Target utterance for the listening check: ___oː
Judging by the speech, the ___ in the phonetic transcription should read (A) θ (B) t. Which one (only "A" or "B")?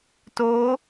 B